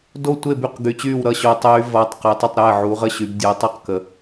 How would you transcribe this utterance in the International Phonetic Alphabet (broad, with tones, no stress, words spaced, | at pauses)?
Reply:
do˥˩tʷe˥˩ by˥˩qɡy˨˦t͡ɕyː˥˩w ɾʌ˥˩ɕo˨˦tˤyː˨˦ vʌː˨˦tˤqe˨˦tˤʌ˥˩tˤɾɛː˥˩ ʕu˨˦ʁə˥˩ɕy˨˦b dʲəː˨˦tˤu˥˩qkə˨˦